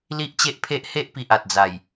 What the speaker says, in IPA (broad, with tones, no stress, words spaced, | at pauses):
li˦ʔt͡ɕe˦ʔpʰe˦ʔ he˦ʔpi˨ʔ a˨t̚d͡za˨˩j